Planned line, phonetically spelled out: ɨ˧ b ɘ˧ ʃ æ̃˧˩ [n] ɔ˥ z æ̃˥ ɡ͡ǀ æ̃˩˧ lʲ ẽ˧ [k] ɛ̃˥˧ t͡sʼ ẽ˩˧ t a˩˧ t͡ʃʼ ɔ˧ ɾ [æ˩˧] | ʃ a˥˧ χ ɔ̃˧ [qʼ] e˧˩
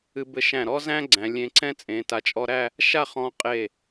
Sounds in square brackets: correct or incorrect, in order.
incorrect, incorrect, incorrect, correct

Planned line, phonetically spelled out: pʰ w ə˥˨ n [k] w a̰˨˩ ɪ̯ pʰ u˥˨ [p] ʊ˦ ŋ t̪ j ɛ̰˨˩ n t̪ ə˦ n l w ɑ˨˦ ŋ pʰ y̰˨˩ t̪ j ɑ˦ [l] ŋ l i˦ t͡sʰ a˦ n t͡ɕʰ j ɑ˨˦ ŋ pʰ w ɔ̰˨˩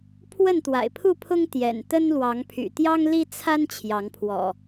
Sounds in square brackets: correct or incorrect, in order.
incorrect, incorrect, incorrect

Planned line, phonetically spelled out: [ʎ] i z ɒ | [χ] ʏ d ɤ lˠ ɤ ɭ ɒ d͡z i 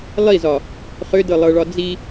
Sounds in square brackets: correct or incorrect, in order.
incorrect, correct

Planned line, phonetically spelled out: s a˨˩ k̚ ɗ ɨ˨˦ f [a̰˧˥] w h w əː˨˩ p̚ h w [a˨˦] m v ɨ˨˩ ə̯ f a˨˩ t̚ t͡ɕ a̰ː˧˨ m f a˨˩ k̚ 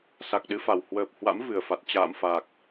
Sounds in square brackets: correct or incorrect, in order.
incorrect, incorrect

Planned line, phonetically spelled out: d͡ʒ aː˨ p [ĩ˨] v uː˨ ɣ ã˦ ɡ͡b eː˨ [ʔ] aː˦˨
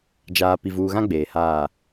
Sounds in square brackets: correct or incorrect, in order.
incorrect, incorrect

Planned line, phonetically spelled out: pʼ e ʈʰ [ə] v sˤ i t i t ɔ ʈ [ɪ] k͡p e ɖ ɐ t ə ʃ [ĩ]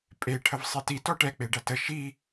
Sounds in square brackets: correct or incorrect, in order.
correct, incorrect, incorrect

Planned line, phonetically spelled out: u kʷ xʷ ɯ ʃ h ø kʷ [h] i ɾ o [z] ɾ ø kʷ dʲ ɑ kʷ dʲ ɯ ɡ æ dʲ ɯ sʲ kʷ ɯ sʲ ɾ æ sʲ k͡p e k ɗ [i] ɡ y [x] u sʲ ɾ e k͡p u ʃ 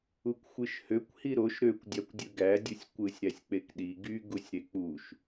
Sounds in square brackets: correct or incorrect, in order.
correct, incorrect, correct, incorrect

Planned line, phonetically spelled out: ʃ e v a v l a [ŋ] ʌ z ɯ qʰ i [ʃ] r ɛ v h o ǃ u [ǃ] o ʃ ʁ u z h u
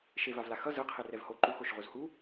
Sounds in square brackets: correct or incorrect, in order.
incorrect, incorrect, incorrect

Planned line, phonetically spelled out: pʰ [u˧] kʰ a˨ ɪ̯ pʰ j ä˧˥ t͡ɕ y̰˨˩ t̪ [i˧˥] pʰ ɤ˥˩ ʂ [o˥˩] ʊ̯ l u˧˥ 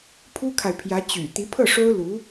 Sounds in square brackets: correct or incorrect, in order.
incorrect, correct, incorrect

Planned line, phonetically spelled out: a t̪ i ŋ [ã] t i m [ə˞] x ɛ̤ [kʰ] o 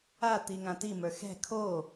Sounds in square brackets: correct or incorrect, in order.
correct, correct, correct

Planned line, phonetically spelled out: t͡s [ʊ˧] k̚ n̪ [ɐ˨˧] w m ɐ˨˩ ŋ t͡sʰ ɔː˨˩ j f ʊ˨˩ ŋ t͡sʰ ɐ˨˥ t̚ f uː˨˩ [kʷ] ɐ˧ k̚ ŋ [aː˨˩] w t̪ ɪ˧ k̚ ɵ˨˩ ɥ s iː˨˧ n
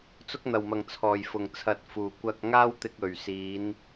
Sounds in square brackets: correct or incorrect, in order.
correct, incorrect, correct, incorrect

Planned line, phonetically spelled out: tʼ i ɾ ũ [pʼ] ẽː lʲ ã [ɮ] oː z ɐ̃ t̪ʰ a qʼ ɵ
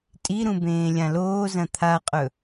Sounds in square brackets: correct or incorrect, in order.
incorrect, incorrect

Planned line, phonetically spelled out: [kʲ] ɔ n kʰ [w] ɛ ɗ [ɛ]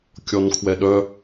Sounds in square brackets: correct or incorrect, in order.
correct, correct, incorrect

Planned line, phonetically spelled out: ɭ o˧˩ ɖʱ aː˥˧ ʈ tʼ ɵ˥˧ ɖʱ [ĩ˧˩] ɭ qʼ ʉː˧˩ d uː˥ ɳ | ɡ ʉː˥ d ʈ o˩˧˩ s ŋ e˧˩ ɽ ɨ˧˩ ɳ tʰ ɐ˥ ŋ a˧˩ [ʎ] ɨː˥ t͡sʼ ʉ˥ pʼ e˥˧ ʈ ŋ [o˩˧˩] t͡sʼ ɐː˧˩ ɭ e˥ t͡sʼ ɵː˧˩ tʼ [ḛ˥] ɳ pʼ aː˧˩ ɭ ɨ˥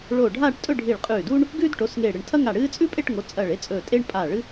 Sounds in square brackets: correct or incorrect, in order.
incorrect, incorrect, correct, incorrect

